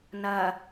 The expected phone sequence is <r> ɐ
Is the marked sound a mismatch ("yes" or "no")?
yes